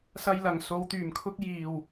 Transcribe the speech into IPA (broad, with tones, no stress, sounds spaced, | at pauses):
s ɐ˧ j l ɐ˨˩ ŋ s o˨˧ w t̪ yː˨˩ m kʰ ʊ˥ k̚ j iː˨˩ w